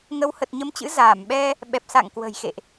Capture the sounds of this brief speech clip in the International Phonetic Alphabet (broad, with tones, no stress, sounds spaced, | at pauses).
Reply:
ŋ ə˨˦ w h ə˨˩ t̚ ɲ ə˨˦ m t͡ɕ ɨ̰˧˥ z aː˧˩ m ɓ ɛ˧ | ɓ ɛ˨˩ p̚ s a̰˧˨ ŋ k w ə̤˨˩ j x ḛ˧˨ ʔ